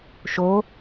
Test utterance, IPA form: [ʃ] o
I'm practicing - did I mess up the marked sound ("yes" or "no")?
no